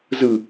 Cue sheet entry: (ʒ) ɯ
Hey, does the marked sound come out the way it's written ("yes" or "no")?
no